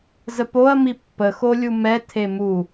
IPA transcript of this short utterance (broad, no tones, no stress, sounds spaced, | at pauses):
z ə p o ɐ̯ m i pː ə x o lʲ u m ɛ tʰ e m u